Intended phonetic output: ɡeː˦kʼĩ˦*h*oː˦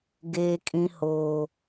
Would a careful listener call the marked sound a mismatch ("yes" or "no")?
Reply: no